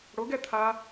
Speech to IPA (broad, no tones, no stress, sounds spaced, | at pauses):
ɽ o ɡ ɛ t̪ʰ a